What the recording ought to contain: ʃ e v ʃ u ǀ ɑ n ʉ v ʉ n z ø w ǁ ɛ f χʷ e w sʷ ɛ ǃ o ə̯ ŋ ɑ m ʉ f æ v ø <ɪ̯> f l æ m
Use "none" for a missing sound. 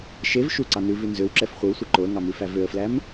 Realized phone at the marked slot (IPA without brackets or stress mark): ə̯